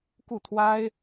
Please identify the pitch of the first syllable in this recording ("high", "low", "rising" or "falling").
falling